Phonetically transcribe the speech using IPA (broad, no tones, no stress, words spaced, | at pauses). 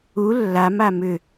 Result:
u lːama mʏ